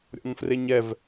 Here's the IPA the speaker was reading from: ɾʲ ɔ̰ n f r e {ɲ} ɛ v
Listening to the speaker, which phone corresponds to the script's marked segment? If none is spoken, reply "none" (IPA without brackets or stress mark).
ɲ